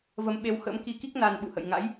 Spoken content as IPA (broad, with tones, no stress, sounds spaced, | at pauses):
v ə˨˦ m ɓ e˨˦ w x ə̰˧˥ m k i˧ k i˦˥ k̚ n a˧ n ɓ ṵ˧˨ h ə̰˧˨ j ŋ a̰˧˥ j